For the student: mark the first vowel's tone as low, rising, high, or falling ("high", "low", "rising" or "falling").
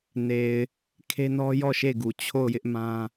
low